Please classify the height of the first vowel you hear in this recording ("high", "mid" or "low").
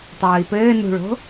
mid